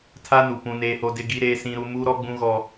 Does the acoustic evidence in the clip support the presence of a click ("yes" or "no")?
no